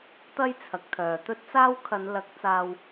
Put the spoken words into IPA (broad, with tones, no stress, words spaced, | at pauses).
t̪ɐ˥jt͡sʰɐ˨˥k̚t̪ʰœː˨ t̪ɵ˥t̚t͡saː˥w kʰɐ˨˧nlɐ˨˥k̚ t͡saː˧w